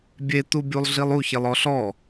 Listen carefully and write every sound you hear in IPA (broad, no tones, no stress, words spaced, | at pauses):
bʲet̪ubʲulˠɮilˠ uçelˠɔ ɬɔ